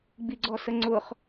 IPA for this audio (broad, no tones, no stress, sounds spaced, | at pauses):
ɡ͡b i ɡ͡ǀ ɔ s ə ŋ͡ǀ ʊː χ